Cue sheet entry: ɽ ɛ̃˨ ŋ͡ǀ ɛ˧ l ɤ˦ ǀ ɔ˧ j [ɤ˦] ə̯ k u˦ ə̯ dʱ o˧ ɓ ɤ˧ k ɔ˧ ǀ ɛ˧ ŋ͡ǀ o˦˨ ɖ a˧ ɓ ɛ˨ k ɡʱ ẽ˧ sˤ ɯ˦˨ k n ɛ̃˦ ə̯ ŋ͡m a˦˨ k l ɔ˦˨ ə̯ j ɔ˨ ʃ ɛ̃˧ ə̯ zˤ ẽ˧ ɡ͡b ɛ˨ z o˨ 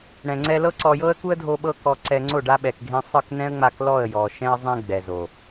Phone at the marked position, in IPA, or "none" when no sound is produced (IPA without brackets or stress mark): ɤ˦